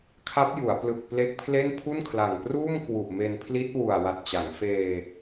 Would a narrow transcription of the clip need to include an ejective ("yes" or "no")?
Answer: no